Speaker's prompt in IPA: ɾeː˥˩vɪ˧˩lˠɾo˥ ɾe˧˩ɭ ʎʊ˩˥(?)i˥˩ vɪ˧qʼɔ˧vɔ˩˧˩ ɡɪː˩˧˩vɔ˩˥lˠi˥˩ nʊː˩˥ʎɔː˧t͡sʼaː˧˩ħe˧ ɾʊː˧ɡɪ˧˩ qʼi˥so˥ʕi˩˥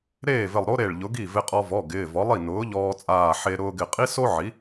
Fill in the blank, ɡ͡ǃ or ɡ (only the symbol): ɡ